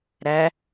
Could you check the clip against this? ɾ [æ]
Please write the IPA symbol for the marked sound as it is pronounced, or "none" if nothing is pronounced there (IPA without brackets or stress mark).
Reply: æ